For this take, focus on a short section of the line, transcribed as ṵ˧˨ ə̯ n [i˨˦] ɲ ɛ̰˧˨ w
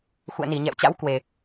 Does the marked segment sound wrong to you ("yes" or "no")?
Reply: yes